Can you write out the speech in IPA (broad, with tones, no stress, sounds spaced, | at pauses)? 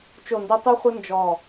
t͡ʃ o˧˩ n d i˧ tˤ i˥ χʷ ə˥ n d͡ʒ ɔ˧˩